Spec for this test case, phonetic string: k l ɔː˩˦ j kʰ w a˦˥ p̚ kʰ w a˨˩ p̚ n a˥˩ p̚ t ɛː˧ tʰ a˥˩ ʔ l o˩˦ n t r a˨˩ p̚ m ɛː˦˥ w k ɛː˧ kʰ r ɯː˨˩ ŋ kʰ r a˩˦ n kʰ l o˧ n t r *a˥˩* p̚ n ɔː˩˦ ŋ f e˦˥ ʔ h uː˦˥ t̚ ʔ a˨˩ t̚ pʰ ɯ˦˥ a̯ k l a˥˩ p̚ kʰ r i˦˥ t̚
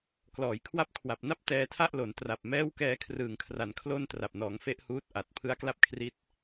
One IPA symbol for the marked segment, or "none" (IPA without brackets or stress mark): a˨˩